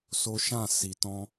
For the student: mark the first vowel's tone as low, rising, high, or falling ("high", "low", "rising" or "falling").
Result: high